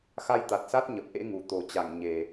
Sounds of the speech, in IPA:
x a˧ j t̪ a˨˩ t̚ s a˦˥ t̚ ɲ ə˨˩ p̚ ʔ ḛ˧˥ ŋ u˨˩ t̪ o˨˩ t͡ɕ a˧˩ ŋ ɲ e˨˩

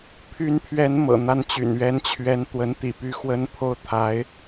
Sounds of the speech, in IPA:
pʰ y˧˥ n pʰ ɥ ɛ˧˥ n m ɤ̰˨˩ n̪ a˥ n t͡ɕ y̰˨˩ n ɥ ɛ˧˥ n t͡ɕʰ ɥ ɛ˧˥ n t̪ w ə˧˥ n t̪ ḭ˨˩ p y˥ x w ə˥ n pʰ o˥ ʊ̯ t̪ʰ a˧˥ ɪ̯

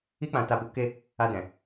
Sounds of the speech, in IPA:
i˦ k͡p ã˧ t a˧ b o˧ k e˧ | a˧ d ɛ̃˨

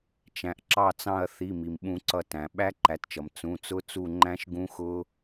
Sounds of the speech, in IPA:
t͡ʃ æ̃˩ ʔ ǁ ɑ˦˨ t͡s ɑ̃˦˨ ɐ̯ θ i˩˧˩ m i˩ m ɓ ũ˨˩˦ ǀ ʌ˨˩˦ t æ̃˩ ɓ æ˦˥ ǃ æ˩˥ t t͡ʃ ʌ˩ m t͡s ũ˩˧˩ t͡s ʊ˦˥ t͡s u˦˨ ŋ͡ǃ æ̃˦˥ ʃ ɡ ũ˦˥ x ʊ˦˥

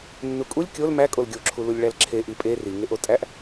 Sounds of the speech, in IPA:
nː u kʼ u lʲ kʲ o l m æ kʼ o l ɡʲ o ǁʰ u l u lʲ ɭ æ l ǁʰ e ʔ i pʼ e r i ŋ e ʔ o tʼ æ ʔ

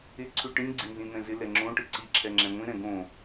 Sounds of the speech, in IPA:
ɪ ǀʰ ʉ ʈ ĩ ɡ͡ǀ ɪ n z ĩ n̪ ɛ̃ z ɪ l ɛ ŋ͡ǁ õ ʈ ɘ ǀ i ǁʰ ɛ ŋ͡ǁ ɛ̃ ŋʷ ĩ ɾ ɛ̃ ɡ õ

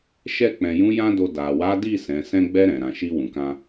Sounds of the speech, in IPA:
ʃ ɛ˧ k͡p ɛ̃˨ j ũ˨˦ j ã˦ d o˧ d a˨ w a˨˦ d i˦˨ s ɛ̃˨˦ s ɛ̃˧ ɡ͡b ɛ˧ ɾ ɛ̃˨ ɾ ã˨ ʃ i˧ w ũ˨ k ã˧

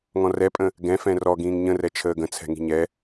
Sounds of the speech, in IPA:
ŋ ɔ̃ r ɛ pʼ ə̃ | ɡ ɛ̃ f ɛ̃ r ɔ ɡ ĩː ŋ ɲ ə̃ r ɛ t͡ʃʰ əː ɡ ə̃ t͡sʰ ɛ̤ ŋ i̤ ɲ ɛ

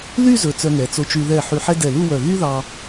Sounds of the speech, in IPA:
l y˥˧ z ɵ˩˧ t͡s œ˧ ŋ ɛ˩˧ t͡s o˧ t͡ʃ y˧ ð ɛ˧˩ ħ y˧ ħ ɛ˥ d ɛ˧˩ l u˥˧ w œ˧˩ ɣ y˥ ð ɑ˧

